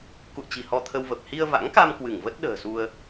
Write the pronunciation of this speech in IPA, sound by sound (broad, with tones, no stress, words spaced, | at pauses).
kṵ˧˨ə̯t͡ɕi̤˨˩ hɔ˧t̪ʰə˧wvə˨˩p̚ hi˧ə̯va̰˧˥ŋka˧m kwɨ˧˩ŋvə˦˥t̚ ɗə̤ː˨˩su˧ə̯